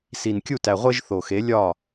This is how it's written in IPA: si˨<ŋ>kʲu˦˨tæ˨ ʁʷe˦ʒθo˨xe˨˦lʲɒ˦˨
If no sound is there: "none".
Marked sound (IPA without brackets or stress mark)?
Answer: n